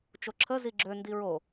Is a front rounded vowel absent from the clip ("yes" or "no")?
no